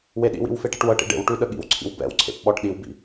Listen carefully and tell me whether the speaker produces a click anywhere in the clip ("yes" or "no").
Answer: yes